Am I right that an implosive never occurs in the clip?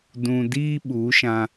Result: no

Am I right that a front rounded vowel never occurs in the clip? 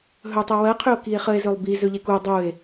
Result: no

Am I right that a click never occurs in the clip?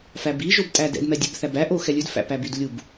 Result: yes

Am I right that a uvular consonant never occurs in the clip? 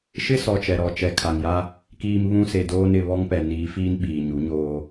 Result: yes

